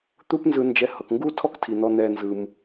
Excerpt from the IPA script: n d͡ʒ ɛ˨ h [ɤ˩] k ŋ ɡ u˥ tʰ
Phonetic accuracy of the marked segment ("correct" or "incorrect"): correct